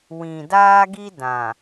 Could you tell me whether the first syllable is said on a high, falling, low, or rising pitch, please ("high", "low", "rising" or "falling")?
low